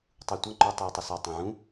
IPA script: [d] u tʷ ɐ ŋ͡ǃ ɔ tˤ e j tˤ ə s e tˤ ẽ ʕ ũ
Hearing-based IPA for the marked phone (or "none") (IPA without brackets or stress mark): tˤ